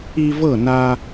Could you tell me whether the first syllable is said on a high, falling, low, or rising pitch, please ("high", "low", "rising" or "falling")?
high